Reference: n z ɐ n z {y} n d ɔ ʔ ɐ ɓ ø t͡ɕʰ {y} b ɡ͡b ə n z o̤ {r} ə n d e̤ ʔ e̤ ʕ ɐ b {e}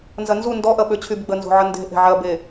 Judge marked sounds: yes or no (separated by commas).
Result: no, yes, no, yes